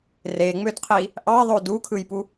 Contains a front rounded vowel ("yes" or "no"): yes